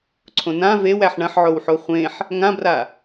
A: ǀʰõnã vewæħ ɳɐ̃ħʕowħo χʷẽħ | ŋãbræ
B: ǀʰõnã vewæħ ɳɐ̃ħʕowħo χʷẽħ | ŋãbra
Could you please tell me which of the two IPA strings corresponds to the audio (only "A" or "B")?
B